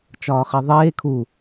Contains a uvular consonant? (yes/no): yes